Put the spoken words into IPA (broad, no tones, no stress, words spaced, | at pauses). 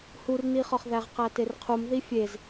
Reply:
hurniχɒχðæʁ qæterqʰum ðifʲez